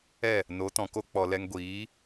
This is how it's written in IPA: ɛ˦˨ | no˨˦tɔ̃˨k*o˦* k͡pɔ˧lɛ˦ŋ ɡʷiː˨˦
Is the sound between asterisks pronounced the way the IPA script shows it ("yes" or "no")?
yes